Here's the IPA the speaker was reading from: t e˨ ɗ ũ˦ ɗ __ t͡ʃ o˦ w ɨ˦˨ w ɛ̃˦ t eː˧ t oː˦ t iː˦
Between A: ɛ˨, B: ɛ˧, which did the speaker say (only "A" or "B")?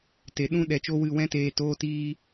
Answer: B